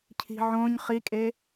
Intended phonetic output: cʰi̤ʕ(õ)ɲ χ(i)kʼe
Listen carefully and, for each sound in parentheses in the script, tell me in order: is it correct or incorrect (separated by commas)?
correct, correct